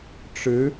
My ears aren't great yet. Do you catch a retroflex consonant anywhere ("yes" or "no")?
yes